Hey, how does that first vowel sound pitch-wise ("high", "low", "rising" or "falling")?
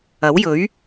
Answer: rising